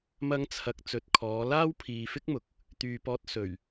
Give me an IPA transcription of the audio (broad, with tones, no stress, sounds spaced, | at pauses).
m ɐ˥ ŋ t͡sʰ ɐ˧ k̚ t͡s ɵ˨˥ t̚ kʰ ɔː˨˧ l aː˥ w pʰ iː˨ f ɪ˥ k̚ m ʊ˨ k̚ | t̪ yː˨ p ɔː˧ t̚ s ɵ˨˩ ɥ